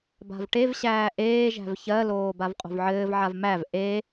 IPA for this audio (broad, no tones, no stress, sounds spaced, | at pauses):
b a̤ v ʈ e v ɕ æː ʔ eː ʒ æ̤ v ç ɜ l oː b a v qʼ o̤ v ʕ ɘː v ʕ a v m æ v ʔ e